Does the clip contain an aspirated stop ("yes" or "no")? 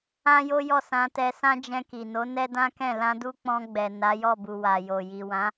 no